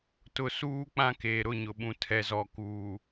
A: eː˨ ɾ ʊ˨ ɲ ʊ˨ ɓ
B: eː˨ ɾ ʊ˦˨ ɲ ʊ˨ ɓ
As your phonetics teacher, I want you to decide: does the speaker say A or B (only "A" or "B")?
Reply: B